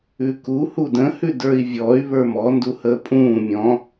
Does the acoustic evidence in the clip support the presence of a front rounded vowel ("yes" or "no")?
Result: yes